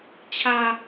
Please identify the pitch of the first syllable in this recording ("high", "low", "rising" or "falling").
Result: low